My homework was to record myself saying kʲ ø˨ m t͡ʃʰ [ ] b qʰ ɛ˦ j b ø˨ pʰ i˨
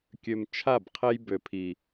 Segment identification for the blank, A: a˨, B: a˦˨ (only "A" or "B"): B